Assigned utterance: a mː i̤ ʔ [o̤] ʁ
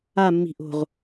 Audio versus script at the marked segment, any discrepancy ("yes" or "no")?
no